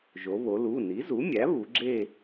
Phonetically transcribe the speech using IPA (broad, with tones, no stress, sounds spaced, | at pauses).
ʒ o˩˧ β o˩˧ l u˩˧˩ n i˩˥ z u˩˥ mʲ æ˩˥ β u˩˧ ɡ͡ǁ e˦˨